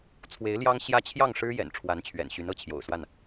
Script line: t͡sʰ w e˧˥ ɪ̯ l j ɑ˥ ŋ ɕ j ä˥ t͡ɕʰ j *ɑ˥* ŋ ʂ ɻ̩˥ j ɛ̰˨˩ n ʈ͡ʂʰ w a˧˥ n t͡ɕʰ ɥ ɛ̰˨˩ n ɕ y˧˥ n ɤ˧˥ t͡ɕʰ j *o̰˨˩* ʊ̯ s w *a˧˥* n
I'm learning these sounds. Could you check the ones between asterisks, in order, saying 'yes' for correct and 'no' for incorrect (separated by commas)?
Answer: no, yes, no